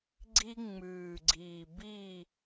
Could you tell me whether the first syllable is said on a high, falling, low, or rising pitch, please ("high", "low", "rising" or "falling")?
high